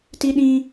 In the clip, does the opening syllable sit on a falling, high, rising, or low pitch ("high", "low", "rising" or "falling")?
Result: high